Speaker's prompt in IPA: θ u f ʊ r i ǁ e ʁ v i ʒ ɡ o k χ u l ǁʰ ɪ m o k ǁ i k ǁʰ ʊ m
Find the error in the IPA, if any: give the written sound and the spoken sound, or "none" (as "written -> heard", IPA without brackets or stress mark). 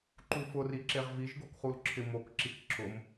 θ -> ǃ